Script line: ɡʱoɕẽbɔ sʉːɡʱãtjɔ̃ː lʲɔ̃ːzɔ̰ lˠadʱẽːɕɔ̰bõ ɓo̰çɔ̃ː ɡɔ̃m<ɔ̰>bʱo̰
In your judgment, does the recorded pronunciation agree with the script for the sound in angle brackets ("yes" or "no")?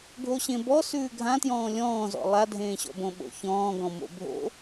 no